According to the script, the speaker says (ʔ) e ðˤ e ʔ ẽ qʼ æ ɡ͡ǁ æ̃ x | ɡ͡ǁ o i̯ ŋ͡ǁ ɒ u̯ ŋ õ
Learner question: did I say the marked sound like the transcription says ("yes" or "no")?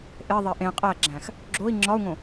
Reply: yes